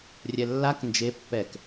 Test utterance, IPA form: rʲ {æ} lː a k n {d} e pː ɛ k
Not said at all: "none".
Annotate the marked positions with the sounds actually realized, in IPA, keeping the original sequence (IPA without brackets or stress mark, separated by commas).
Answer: ɛ, d͡ʒ